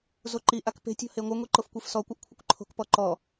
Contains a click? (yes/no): yes